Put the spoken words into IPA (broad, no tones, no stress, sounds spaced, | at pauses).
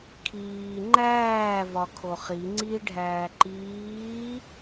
kʰ iː ŋ͡ǃ æː v ɒ kʰ o χ i ŋ͡ǀ i ɖʱ æː ǃ iː